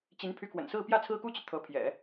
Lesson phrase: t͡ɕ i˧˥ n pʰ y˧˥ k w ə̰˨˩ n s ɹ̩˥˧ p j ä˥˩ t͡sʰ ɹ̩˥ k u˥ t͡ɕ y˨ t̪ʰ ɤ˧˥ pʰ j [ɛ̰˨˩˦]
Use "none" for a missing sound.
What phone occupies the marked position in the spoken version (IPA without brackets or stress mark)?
ɛ̰˨˩˦